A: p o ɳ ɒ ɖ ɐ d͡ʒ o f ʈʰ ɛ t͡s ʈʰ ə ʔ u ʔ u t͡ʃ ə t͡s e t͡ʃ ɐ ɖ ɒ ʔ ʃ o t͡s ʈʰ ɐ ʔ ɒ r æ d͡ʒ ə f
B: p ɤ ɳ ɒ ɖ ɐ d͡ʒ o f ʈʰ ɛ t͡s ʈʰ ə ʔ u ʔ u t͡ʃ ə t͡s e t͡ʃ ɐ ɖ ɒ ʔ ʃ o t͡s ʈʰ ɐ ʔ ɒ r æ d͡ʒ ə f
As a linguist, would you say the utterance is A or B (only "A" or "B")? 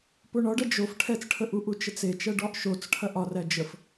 A